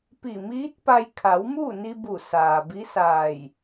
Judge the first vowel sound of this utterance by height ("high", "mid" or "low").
high